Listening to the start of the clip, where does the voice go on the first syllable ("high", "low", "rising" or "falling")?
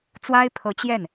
high